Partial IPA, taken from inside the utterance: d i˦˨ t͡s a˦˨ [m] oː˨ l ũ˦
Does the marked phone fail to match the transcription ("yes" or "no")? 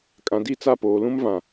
yes